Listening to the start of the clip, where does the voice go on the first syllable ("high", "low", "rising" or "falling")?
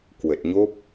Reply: low